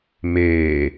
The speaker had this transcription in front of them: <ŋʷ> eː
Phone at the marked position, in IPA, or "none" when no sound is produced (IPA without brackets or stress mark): m